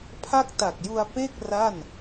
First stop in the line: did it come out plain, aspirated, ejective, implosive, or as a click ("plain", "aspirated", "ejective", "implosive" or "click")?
aspirated